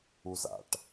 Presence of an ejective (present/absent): absent